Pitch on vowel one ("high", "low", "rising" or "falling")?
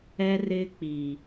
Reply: high